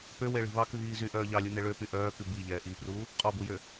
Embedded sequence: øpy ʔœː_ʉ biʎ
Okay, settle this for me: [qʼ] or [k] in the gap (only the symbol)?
k